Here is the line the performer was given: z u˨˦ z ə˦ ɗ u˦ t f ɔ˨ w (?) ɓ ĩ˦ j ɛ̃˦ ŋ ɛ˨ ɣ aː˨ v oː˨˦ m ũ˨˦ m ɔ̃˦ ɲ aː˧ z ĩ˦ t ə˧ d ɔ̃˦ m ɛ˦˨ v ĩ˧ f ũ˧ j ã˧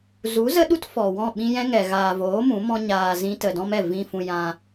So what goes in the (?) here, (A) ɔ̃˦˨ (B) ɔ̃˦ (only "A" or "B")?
A